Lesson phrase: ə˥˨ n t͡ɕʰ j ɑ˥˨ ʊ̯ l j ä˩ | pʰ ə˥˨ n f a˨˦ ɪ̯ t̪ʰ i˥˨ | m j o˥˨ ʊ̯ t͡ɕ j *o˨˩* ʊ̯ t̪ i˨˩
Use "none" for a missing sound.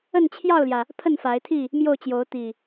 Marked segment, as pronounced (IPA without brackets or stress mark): o˨˦